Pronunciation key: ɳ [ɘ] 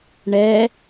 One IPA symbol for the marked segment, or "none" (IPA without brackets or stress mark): ɛ